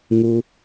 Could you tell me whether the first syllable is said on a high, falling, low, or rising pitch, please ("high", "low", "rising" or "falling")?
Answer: low